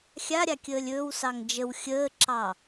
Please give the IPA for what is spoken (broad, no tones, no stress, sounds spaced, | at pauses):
xʲ a ɾʲ a kʲ əː lʲ ɵː w s ɑ ŋ d͡ʒ ə w xʲ əː ǁ ɑ